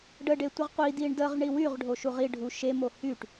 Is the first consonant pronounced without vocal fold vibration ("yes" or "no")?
no